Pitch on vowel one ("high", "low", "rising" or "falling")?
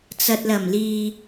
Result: low